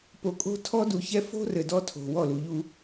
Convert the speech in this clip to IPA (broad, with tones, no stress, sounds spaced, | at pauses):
p o˨ kʼ o̤˦ tʰ ɔ˦ d u˨ ç ɛ˦ f o̤˦ r ɘ˨ d ɔ˦ tʰ o̤˨ w ɔ˦˨ l u˨ ʎ u˦